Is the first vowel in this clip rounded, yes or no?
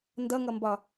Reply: no